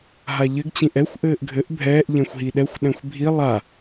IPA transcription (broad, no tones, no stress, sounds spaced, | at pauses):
ɦ a ʎ ɘ ɡ t͡ɕ ĩ ʔ ɛ xʷ ʔ ɘː ʔ ɡʱ ɘ ʔ bʱ ɛː ʔ ʎ ɛ̃ xʷ ɦ i ɗ ɛ xʷ ɗ ɛ̃ xʷ bʱ i lˠ a